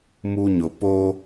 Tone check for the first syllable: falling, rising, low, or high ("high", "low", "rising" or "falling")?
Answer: high